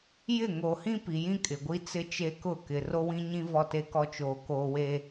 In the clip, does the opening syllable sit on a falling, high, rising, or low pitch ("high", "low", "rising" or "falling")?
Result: falling